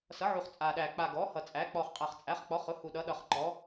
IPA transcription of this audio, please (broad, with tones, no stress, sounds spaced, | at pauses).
s ʌ˩˥ ʕ u˨˩ χ t͡sʼ a˨˩ ɗ æ˨˩ k͡p a˨˩ ɡ ɔ˩˥ h ʌ˨˩ t͡sʼ æ˩˥ k͡p ɔ˨˩ χ qʼ æ˨˩ χ t͡sʼ æ˩˥ χ k͡p ɔ˩˥ χ ʊ˩˥ h u˨˩ ɗ ʌ˩˥ ɗ ʌ˨˩ χ ǃ ɔ˩˥